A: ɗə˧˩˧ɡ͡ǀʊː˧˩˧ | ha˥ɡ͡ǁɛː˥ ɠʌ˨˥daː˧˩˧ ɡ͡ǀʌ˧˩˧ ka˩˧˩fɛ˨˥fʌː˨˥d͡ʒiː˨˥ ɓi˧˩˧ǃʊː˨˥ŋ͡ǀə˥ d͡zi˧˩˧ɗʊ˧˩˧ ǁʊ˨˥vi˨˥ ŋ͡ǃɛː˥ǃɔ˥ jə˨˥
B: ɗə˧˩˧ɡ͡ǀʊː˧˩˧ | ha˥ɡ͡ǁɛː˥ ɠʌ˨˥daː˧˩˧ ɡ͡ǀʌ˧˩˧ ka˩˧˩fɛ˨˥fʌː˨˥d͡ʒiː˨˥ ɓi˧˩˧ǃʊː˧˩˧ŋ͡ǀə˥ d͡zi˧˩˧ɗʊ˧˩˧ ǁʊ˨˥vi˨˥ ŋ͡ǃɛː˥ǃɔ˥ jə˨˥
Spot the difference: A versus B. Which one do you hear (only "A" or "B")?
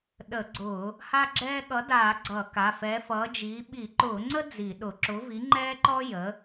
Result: B